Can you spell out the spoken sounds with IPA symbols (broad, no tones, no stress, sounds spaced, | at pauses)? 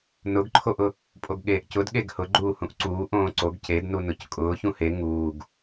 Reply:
n ʊ ɡ ǃʰ o ʔ ʊ | pʼ o ɡ ɠ eː ʔ c ʊ d ɠ e ɡ h ʊ ɡ͡ǃ uː h ũ ʔ ǀ uː ʔ õː ǀ o ɡ c e d n u n ʊ c kʼ ʊː ç ũ h e ŋ uː ɡ